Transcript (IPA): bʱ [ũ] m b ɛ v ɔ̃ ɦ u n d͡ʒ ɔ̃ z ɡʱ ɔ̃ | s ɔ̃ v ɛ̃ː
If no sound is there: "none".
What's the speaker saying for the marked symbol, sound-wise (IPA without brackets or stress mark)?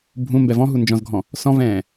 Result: ũ